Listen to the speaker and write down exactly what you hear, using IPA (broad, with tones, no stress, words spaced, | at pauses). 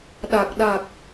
ɗa˨˩k̚ɗa˨˩k̚